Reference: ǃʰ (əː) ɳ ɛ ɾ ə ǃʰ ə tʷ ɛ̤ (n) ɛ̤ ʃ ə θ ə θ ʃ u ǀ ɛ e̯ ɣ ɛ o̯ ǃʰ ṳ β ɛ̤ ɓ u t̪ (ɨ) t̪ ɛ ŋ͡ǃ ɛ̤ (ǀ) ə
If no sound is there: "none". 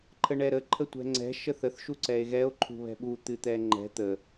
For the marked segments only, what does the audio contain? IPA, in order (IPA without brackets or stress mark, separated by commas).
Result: ə, ŋ͡ǀ, ɨ, t̪